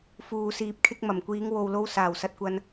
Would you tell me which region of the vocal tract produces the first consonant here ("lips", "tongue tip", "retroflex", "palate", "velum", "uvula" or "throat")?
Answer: lips